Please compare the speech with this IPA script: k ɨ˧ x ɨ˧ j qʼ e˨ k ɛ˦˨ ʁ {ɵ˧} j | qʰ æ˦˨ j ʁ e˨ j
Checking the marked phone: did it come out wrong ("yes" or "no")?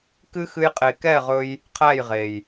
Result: no